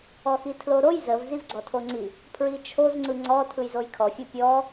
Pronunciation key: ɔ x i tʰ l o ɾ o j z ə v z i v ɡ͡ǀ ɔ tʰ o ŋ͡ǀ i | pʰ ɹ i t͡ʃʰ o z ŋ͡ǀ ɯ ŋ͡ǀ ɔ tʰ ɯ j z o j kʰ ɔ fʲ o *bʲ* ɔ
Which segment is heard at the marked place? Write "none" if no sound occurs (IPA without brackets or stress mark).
pʲ